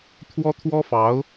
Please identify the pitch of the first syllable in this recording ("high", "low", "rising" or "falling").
high